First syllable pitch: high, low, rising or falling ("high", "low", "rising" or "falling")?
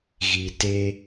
low